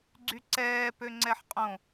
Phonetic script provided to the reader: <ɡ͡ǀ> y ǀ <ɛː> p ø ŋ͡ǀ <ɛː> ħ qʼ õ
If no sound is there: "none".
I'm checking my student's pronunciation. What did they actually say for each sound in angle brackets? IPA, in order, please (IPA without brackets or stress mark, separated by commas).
ɡ͡ǀ, ɛː, ɛ